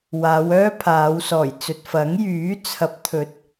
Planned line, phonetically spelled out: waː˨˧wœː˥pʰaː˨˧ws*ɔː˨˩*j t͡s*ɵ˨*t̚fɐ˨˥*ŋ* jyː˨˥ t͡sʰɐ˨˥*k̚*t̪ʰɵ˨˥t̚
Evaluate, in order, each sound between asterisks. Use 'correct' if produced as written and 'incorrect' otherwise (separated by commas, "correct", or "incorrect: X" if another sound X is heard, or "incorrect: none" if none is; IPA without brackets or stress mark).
correct, correct, correct, incorrect: p̚